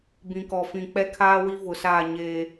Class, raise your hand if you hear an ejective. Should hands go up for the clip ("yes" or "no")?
no